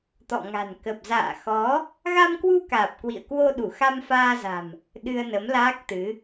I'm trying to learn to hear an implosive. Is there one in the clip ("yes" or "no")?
yes